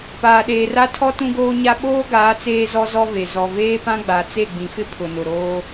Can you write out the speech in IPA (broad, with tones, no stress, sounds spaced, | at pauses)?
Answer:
p aː˨ ɗ eː˨ r a˦ tʰ ɔ˦ t ũ˦ ɡ oː˦ ɲ a˦ ɓ oː˦ ɡ aː˨˦ t͡s eː˦ z ɔ˦ z ɔ˦ v e˨ z ɔ˨ v eː˦ p ã˦ ɡ͡b a˨ t͡s e˦˨ ɡ͡b ĩ˨ f ɪ˦ pʰ ʊ˨ n ʊ˨ ɾ oː˦